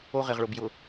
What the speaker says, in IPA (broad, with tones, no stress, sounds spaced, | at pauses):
o˦ ʁ ɪ˨ ʁ ɭ ʊ˨ b j ʊ˨